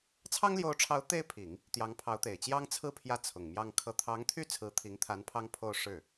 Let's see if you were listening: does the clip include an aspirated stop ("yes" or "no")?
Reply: yes